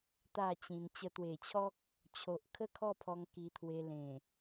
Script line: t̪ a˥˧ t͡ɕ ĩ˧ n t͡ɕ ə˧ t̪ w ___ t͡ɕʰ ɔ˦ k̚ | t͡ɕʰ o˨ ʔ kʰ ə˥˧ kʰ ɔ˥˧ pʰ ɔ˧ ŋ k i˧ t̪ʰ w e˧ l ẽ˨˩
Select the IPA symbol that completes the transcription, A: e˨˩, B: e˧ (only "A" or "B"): A